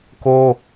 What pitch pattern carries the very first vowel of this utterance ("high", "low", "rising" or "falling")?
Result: high